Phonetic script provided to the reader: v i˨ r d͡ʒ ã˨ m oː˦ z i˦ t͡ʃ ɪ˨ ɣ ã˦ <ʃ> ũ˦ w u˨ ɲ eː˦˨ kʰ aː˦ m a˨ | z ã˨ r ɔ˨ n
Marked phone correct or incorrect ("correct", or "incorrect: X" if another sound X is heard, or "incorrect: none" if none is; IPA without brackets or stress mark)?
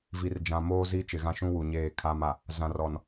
correct